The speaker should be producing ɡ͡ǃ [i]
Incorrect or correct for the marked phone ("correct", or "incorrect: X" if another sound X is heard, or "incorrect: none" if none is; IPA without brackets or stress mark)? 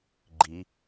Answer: correct